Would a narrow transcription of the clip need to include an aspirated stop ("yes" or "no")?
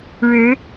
no